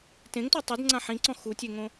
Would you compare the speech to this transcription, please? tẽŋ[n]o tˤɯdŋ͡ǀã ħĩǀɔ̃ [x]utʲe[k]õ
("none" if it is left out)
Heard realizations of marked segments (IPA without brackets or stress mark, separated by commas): t, x, ŋ